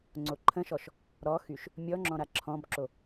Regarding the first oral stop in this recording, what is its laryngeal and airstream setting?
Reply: click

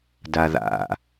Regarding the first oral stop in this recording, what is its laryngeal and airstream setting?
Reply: plain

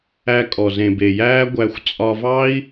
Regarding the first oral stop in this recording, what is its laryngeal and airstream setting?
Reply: ejective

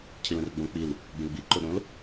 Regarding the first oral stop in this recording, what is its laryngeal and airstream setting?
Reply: aspirated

